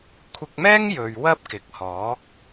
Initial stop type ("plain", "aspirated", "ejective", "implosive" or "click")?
aspirated